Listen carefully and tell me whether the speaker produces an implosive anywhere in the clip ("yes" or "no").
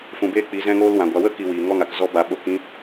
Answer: yes